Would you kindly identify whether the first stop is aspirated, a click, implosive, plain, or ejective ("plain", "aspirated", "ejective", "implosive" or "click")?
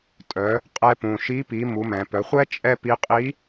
ejective